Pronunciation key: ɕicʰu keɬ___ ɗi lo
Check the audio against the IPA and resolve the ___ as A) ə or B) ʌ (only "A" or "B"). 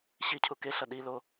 B